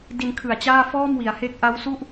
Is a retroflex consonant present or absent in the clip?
absent